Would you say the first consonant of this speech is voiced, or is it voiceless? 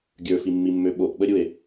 voiced